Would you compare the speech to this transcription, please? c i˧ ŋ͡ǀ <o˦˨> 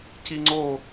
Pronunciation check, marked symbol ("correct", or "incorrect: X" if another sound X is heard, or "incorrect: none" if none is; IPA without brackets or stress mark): correct